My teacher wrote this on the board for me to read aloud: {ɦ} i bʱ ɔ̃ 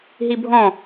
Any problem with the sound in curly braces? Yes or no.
no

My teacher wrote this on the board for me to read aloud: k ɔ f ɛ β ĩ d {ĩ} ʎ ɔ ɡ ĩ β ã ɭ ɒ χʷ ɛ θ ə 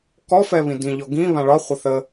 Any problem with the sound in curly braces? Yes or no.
no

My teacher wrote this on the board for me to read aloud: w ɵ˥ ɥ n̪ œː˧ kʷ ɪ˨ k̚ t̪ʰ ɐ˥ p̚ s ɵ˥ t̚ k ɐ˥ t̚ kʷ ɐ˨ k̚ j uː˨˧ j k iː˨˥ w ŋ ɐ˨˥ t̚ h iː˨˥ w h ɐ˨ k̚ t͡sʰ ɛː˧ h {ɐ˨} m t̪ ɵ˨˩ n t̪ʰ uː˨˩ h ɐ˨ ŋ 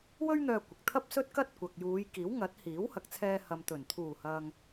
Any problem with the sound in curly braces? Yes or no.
no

